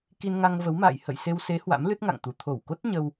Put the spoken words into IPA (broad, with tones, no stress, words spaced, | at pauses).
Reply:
ki˧nŋa˧ŋvə˨˦wma̰ː˧˨j hə̰˧˨j se˧w se˨˦ hwa̰˧˥mlɨ˦˥t̚ŋa̰˧˨ŋt̪u˨˩ t̪ʰo˧˩wko˦˥t̚ ɲə˧w